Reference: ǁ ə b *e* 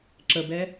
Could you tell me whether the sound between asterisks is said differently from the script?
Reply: yes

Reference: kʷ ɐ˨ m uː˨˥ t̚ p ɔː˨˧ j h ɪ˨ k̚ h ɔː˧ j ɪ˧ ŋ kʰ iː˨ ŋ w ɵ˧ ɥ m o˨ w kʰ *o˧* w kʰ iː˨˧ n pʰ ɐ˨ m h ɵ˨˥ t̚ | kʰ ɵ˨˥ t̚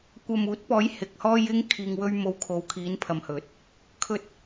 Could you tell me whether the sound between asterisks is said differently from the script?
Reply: yes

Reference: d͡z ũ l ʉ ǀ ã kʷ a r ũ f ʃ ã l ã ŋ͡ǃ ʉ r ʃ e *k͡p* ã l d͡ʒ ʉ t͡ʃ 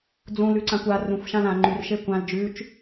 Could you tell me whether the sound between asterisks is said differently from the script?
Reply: yes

